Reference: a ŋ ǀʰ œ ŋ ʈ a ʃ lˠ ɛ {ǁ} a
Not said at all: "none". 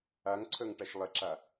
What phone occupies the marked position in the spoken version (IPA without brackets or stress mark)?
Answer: ǁ